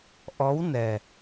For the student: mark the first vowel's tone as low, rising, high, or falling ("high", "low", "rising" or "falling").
rising